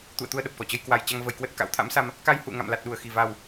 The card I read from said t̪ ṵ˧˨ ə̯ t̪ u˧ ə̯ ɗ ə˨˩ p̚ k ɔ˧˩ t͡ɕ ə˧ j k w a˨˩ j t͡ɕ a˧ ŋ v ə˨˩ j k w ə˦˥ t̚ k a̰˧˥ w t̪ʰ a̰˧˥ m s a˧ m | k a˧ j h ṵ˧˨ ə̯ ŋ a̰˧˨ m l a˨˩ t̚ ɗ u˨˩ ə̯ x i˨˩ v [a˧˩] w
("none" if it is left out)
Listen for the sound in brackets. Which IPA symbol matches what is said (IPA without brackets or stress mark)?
a˨˩